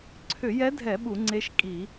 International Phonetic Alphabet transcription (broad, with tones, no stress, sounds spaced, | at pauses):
ǀʰ ʏ˧˩˧ j ɛ˧˥ dʱ ɛ˧˩˧ ɓ u˧˩˧ ŋ͡ǀ e˧˥ ʃ kʼ i˧˩˧